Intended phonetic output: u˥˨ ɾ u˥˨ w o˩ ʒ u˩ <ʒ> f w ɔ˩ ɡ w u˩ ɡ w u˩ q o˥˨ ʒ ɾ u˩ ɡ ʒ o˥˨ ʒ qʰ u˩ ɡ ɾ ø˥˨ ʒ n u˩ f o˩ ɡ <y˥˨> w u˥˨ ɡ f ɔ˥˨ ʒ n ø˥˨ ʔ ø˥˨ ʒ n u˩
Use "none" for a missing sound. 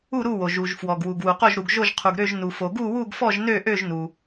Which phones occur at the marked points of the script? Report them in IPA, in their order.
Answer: ʒ, u˥˨

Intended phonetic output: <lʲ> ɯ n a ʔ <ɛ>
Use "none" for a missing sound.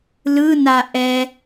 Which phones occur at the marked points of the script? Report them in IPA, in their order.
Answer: l, ɛ

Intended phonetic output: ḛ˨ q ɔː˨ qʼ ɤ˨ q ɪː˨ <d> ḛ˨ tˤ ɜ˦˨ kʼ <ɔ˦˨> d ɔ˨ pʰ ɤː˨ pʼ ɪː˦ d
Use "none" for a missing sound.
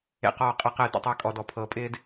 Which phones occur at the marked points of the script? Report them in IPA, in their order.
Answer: d, ɔ˨

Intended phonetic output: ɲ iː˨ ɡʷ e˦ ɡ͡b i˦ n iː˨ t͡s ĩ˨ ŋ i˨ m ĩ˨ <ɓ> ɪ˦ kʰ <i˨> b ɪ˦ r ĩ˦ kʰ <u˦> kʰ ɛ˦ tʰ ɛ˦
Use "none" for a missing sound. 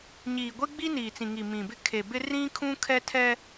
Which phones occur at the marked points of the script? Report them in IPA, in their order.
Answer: b, e˨, ũ˦

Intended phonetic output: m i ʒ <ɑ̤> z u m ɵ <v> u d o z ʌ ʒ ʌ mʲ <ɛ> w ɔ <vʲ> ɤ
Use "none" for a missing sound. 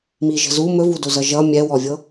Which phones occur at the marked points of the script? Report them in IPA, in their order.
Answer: ə̤, v, ɛ, vʲ

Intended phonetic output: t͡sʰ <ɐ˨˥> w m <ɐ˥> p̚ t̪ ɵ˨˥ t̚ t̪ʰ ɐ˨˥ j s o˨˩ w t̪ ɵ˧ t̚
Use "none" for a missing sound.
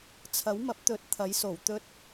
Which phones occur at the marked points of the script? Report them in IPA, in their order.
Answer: ɐ˨˥, ɐ˨˥

